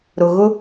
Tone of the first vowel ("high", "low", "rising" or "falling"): low